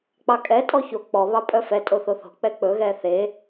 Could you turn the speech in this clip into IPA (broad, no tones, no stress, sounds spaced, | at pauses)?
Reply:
k͡p ɑ kʼ ɛ tʼ ɔ ç o k͡p ɔ β ɑ pʼ œ f ɛ tʼ o θ o θ o̤ k͡p ɛ k͡p ɵ ɣ ɛ θ e